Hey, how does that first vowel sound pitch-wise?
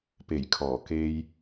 low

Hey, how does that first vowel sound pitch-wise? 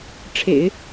low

